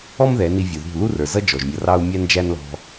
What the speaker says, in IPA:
ɔ˦m ðɛ˨˦ni˧vʲu˨ðṳ˦˨ lu˦rə˞˨zʌ˦ d͡ʒɔ˨ʒmʲʌ˧rɑ˦u̯ mʲæ˦nd͡ʒæ˦nlɔ̤˧

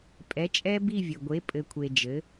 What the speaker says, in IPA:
pʼɛ˨˥t͡ʃʼɛ˦˥ bi˥˧vʲə˨ɡʷe˨˥ pʼɘ˨kʷʰe˨ d͡ʒɘ˨˥

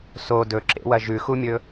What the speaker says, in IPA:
so dɵǁḛwɐ ʒʉxumʲɵ

